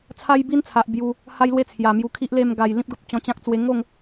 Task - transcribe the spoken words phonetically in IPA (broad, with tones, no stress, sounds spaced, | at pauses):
t͡sʰ a˦ j b i˦ n t͡sʰ a˨ ʔ b j u˧ | h a˦ j l w e˥˧ t͡sʰ j a˨˩ m j u˧ kʰ i˦ ʔ l e˥˧ m ɡ a˨˩ j l ĩ˦ p̚ ɡ ə˦ p̚ t͡ɕ ɔ̃˧ t͡ɕ ã˦ k̚ t͡s w e˧ ŋ o˥˧ ŋ